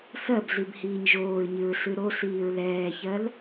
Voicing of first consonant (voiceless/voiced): voiceless